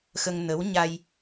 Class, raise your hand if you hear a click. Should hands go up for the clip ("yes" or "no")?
no